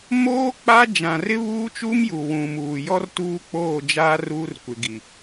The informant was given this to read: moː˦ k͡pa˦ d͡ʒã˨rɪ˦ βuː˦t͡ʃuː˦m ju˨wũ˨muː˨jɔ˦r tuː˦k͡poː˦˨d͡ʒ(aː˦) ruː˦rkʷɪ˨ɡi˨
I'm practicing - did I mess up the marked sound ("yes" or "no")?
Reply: no